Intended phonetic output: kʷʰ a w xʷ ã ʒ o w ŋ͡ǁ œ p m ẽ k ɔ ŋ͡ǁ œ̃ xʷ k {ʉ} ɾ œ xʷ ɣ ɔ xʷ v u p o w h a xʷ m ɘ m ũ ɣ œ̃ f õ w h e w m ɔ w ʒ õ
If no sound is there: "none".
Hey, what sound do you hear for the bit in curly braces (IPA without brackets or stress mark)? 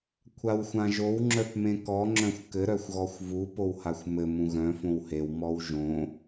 ɘ